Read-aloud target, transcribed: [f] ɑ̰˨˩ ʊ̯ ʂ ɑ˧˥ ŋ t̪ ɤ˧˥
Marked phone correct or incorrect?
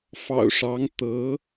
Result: correct